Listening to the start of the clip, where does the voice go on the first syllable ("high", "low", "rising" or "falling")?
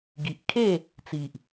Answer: low